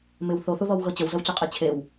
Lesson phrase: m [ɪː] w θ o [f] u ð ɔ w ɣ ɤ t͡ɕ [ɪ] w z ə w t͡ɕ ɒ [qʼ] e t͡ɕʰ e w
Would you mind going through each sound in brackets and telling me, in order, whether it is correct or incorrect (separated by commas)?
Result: incorrect, incorrect, incorrect, correct